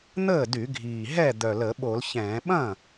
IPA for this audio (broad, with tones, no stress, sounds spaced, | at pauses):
n̪ əː˥˩ d y˧˩˧ ɡʱ iː˨˩ ɦ ɛ˥˩ d̪ œ˨˩ l ə˧˩˧ ɓ o˧˩˧ l ç ɛ̃ː˧˩˧ ɓ ɐ̃˥˩